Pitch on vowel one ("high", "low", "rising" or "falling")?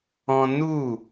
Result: high